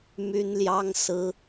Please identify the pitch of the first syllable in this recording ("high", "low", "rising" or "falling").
high